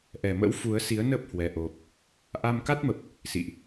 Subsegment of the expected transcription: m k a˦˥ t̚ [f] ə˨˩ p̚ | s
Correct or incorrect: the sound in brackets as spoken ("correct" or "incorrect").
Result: incorrect